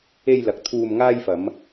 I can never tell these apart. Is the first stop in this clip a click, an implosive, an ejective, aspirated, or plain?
plain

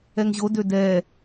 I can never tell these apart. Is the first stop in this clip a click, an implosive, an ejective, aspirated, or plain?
plain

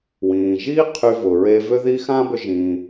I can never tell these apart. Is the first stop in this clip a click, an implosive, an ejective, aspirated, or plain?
aspirated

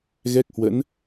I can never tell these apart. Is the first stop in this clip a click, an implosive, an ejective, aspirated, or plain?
plain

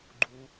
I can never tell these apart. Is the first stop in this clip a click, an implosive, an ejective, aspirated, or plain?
click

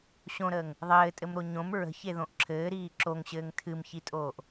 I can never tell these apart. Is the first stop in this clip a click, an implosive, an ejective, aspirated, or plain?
ejective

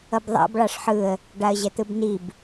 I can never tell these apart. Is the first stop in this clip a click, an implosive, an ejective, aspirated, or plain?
plain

